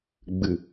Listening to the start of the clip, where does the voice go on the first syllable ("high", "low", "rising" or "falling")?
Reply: low